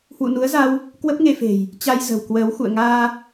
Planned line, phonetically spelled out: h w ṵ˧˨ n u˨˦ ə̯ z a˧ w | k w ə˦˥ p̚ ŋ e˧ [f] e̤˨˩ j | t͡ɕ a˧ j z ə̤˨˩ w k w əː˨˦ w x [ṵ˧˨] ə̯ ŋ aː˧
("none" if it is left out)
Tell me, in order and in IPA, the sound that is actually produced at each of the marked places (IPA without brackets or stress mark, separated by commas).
f, ṵ˧˨